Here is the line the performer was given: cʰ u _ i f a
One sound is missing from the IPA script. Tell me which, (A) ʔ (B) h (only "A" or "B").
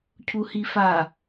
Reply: B